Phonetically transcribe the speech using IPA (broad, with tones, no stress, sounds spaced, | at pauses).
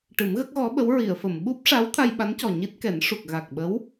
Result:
ʈ ɨ˨˩˦ m ɣ ə˦˥ k̚ ɣ ɔ˧˥ ɓ ə˧˥ w ɹ i˨˩˨ ə̯ f ə˨˩˨ m ɓ u˦˥ p̚ ʂ a˧˥ w t̪ʰ a˧ j ɓ a˧˥ n c ɔ˨˩ ɲ i˦˥ t̚ k ɛ˨˩˦ n ʂ u˨˩ k̚ ɣ a˨˩ k̚ ɓ ə˧˥ w